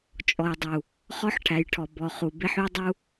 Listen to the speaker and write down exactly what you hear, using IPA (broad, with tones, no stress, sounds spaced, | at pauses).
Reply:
t͡ʃʼ ɔ˨ j dˤ u˨ | χ ɔ˦ ħ ʈʰ æ˨ j ʈʰ ɔ˨ b ɔ˨ χ u˨ b e˦ ħ y˦ dˤ u˦